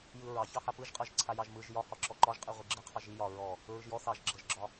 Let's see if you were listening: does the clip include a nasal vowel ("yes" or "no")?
no